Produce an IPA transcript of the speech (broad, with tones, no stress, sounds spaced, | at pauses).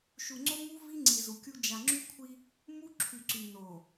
ʃ u˨ ŋ͡ǀ o˦ m u˦ v i˦ ŋ͡ǀ i˨ z u˨ kʲ u˦ d͡ʒ a˨ ŋ͡ǁ y˦ kʷʰ i˦ | m u˦ ǁʰ y˨ ǀ y˨ n o˨